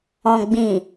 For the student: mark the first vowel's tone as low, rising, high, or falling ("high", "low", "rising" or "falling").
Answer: low